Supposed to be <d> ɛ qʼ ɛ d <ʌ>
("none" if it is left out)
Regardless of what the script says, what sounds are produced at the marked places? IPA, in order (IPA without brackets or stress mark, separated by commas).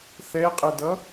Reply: θ, ʌ